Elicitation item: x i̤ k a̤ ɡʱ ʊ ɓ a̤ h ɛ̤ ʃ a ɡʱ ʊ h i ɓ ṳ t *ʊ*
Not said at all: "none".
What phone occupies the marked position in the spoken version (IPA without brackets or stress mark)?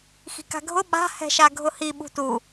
u